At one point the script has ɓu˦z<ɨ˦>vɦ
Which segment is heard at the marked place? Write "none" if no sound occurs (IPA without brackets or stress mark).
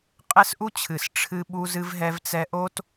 ɨ˦